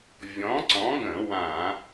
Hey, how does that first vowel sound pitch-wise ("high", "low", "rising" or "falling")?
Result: rising